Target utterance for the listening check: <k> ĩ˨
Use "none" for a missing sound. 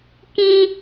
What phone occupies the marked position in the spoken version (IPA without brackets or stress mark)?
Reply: k